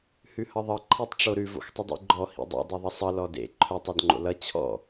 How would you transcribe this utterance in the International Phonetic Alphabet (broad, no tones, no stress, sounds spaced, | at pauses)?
h ʉ h ʌ ðˤ ʌ ǃʰ e tˤ ʈ͡ʂ o ɾ ʉ v o̰ x tˤ ə dˤ ḛ ɡ͡ǃ ɔ h ḭ dˤ ḛ dˤ e ðˤ ʌ sˤ ʌ l ɔ d ḛ ǃʰ œ tˤ ɔ d ŋ͡ǃ o̰ l ʌ t͡ɕʰ ɔ̰